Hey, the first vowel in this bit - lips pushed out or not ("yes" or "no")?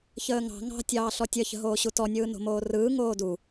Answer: no